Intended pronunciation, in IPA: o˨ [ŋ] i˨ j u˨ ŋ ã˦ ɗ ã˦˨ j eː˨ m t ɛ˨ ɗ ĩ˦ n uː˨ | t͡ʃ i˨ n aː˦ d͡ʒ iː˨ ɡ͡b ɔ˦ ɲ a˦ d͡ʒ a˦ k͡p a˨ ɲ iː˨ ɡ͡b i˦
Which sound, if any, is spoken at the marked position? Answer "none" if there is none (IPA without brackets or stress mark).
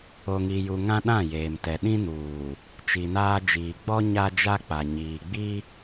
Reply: ŋ